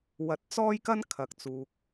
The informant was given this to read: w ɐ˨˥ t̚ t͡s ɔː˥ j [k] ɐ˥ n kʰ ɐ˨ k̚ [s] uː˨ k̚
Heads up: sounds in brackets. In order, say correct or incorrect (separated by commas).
correct, incorrect